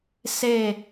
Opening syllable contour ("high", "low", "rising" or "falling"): falling